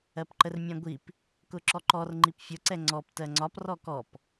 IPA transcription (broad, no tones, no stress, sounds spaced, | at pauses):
ɜ p ǃ ə r mʲ æ̃ ɡʷ i p | k ʊ ǁ ɔ ǃ ɔ r ŋ͡ǃ i p fʲ ʊ ǀ ɛ ŋ͡ǀ ɔ p t ɜ ŋ͡ǀ ɒ p r ɔ k ɔ p